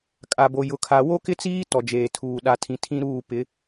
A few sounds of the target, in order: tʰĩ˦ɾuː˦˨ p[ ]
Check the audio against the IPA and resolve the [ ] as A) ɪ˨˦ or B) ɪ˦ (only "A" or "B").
A